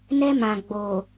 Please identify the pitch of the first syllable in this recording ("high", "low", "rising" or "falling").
high